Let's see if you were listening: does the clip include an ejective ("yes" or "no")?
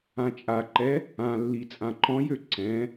yes